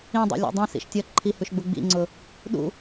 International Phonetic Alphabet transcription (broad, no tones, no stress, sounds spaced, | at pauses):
ĩ dˤ ḭ lʲ ṵ dˤ ĩ s ḭ ʃ tʲ ʌ ǃʰ i h ʉ ʃ ɡ͡b u ɡ͡b ḭ ŋ͡ǀ ʊ | ɗ ṵ